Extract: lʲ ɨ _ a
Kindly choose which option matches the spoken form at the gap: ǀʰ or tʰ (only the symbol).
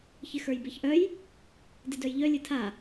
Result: tʰ